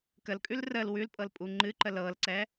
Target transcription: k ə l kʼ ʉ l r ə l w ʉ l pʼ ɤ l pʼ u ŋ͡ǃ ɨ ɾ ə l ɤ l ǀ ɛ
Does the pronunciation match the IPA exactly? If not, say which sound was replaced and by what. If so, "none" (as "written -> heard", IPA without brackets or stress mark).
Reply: ɾ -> ǃ